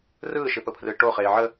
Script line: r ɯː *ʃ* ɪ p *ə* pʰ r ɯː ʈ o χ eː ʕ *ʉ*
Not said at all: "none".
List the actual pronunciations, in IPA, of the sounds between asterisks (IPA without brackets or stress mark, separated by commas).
ʃ, ə, ə